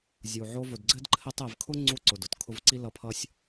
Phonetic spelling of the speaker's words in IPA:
zʲ u˩ ʕ o˦ v ʊ˨ d ɡ͡ǀ ɘ˥ d ǃʰ ɘ˦ tˤ ɘ˨ v kʰ ʊ˥ ŋ͡ǀ u˥ ǀ ʊ˩ d ʊ˩ t kʰ ʊ˦ v ǀ i˥ l ʌ˦ pʰ ʌ˥ sʲ

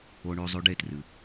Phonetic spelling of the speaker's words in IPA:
o˨ ɳ ʉ˨ zˤ ʉ˧ ɖ e˦˨ t r ɨ˨

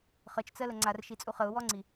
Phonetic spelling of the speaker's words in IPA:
χ ə t͡ʃ t͡s ɜ l ə ŋ͡ǀ a r ʃ i t͡sʼ u χ ə ʊ̯ w ɔ ŋ͡ǀ i

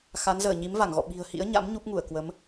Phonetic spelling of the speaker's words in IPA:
x a˨˦ n z əː˧˩ ɲ i˨˦ m v a˧˩ ŋ ɣ ɔ̰˧˨ ɓ i̤˨˩ ə̯ h ḭ˧˥ ə̯ ɲ a̰˧˥ m ɲ u˦˥ p̚ ŋ u˧˩ ə̯ k w ə˨˦ m

